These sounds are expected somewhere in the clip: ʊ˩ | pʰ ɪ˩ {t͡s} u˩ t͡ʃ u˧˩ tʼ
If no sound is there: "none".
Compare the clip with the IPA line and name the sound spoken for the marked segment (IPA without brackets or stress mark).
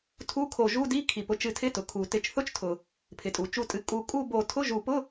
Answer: tʼ